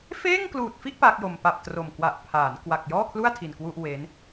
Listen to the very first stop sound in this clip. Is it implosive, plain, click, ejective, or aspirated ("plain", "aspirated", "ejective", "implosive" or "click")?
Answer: plain